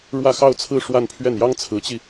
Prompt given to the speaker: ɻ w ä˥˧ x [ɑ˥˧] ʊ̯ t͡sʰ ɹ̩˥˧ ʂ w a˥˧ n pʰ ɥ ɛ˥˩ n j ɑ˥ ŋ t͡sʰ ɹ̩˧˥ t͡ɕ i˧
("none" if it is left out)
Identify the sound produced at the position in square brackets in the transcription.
ɑ˥˧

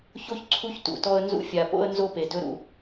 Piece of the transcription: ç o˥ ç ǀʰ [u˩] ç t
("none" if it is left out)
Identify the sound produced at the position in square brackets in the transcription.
u˦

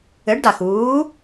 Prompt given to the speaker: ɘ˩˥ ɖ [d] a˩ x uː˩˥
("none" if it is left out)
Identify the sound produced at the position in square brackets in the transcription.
d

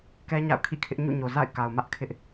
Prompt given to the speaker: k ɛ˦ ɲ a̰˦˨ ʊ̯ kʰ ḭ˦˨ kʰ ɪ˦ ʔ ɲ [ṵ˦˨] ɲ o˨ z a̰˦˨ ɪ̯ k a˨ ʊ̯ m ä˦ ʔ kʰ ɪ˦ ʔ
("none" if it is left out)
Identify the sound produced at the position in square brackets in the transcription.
ṵ˦˨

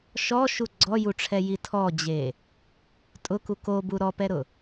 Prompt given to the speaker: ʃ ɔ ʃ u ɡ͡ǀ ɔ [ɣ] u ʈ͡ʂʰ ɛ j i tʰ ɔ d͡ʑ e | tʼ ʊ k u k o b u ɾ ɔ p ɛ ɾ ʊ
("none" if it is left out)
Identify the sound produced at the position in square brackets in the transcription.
j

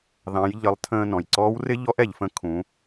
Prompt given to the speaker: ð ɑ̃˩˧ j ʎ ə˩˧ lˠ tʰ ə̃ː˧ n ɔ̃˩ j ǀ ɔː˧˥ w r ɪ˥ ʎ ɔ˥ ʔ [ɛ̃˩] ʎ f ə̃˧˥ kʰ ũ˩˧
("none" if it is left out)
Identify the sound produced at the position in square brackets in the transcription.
ɛ˩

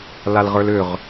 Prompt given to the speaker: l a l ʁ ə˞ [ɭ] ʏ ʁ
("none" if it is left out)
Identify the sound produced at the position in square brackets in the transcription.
l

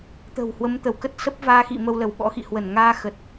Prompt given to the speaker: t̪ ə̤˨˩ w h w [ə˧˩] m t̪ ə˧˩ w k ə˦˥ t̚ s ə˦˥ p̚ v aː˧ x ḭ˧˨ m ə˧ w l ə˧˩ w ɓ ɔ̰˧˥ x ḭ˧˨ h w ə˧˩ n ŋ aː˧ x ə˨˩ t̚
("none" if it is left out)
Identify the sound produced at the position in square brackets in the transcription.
ə˨˦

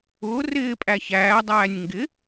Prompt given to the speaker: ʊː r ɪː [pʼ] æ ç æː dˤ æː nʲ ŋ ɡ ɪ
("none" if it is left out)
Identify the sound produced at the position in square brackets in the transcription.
pʼ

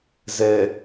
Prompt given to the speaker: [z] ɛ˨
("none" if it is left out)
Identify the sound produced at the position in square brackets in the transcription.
z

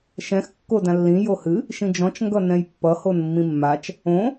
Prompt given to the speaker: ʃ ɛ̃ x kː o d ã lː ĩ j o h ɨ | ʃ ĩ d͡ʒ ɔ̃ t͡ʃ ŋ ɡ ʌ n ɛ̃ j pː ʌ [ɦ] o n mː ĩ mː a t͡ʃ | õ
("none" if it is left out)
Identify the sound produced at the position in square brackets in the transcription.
h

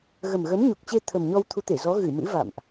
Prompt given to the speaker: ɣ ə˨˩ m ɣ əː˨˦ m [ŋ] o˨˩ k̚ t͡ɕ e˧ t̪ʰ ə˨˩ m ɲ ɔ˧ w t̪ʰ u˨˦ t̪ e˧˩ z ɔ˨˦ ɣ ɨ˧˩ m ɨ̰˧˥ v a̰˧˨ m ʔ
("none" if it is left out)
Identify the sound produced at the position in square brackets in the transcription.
ɲ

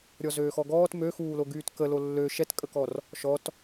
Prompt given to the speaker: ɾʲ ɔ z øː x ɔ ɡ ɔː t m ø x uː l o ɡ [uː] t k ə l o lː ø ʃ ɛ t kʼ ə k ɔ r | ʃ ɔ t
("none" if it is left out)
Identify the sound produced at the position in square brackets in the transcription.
yː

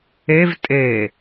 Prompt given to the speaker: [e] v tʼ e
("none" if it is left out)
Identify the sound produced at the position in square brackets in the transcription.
e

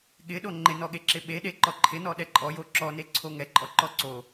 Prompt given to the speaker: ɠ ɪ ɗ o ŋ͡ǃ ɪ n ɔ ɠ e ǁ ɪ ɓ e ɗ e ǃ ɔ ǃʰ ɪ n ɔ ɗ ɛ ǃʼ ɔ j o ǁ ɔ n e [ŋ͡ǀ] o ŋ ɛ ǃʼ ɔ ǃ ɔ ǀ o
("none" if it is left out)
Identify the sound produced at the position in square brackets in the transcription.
ǀʰ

